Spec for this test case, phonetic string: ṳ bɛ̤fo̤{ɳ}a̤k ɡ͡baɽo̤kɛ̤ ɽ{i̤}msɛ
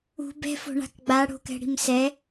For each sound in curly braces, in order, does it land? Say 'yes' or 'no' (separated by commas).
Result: yes, yes